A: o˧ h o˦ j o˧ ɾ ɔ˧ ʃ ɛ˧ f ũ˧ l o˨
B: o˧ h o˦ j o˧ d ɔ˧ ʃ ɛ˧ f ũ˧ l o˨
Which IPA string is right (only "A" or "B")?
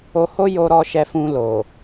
A